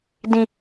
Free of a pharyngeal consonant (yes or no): yes